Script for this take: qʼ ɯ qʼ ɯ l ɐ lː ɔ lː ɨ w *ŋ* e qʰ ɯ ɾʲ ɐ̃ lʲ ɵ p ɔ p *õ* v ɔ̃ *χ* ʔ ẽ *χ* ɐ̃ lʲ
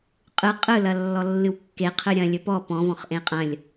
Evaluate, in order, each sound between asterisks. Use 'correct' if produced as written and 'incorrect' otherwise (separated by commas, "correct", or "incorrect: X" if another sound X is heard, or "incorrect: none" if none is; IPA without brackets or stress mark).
incorrect: kː, incorrect: ɔ̃, correct, incorrect: qʼ